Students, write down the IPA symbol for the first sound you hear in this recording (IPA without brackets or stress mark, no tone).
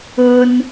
ʊ